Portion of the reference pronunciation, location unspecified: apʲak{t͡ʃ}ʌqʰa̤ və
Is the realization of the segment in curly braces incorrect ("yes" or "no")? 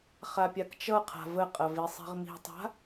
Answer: no